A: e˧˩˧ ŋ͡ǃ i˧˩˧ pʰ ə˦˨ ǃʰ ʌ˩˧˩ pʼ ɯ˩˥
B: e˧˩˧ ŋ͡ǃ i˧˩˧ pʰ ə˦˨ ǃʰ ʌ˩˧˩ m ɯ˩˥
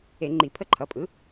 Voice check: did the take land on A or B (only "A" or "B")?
A